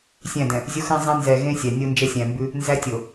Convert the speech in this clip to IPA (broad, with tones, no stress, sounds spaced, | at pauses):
sʲ æ̃˦˨ d ɛ̃˨ | zʲ o˦ x ɛ̃˦ zˤ ẽ˦ n z ɛ˨ ɣ ẽ˦ sʲ æ˨ nʲ o˦ n d͡ʒ ɛ˦ sʲ æ̃˨ m b ʉ˦ | n z æ˦ tʲ o˨